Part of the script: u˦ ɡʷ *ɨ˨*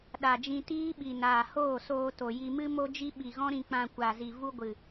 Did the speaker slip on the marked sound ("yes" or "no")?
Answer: no